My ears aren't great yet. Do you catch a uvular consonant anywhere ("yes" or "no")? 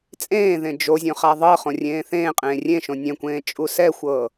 yes